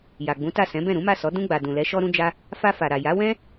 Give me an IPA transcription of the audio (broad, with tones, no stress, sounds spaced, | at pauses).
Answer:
j a˨ ɡ͡b ũ˨˦ t a˦˨ s ɛ̃˨˦ b ɛ̃˦˨ ɾ ũ˨˦ m a˦˨ s ɔ˨˦ d ũ˧ ɡ͡b a˨ d ũ˨ l ɛ˨˦ ʃ ɔ˧ ɾ ũ˧ d͡ʒ a˧ | f a˧ f a˨ ɾ a˨ j a˨˦ w ɛ̃˦